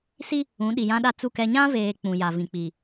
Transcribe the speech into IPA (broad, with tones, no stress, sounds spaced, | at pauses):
s i˦ | ũ˨˦ ɗ i˨ j ã˦ ɗ a˦ t͡s u˦˨ k ɛ˦ ɲ ã˦ v eː˨ k͡p ũ˨ j a˨ v ĩ˨ k͡p i˨